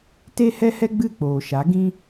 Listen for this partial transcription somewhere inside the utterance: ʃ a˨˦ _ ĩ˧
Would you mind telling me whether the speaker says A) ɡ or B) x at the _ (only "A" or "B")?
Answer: A